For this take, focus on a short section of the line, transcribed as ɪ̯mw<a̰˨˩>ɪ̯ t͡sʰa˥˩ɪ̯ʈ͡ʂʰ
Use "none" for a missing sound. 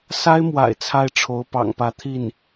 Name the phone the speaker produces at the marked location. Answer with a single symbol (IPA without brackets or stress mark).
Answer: a̰˨˩